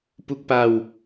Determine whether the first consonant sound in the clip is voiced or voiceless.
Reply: voiceless